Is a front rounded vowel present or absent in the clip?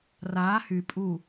present